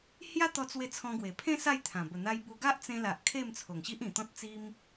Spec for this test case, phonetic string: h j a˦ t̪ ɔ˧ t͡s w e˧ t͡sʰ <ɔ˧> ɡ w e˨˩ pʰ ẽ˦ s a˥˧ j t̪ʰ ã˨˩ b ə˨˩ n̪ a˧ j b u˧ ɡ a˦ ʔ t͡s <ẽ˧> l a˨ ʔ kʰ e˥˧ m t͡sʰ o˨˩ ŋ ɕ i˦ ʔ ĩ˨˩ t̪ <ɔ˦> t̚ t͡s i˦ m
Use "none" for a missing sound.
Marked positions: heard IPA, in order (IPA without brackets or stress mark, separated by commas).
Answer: ɔ̃˧, ẽ˧, ɔ̃˦